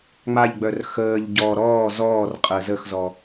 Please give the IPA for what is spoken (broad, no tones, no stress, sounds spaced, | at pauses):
ŋ͡m a ʎ ɡ͡b œ r x əː ʎ ɟ ɔ ɾ ɔː z ɔː r qʼ ə z ə x z ɔ